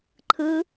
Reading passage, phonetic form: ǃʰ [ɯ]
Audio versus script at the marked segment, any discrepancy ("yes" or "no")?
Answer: no